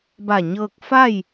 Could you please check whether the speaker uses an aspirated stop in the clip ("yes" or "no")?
no